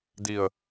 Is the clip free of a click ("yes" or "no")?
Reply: yes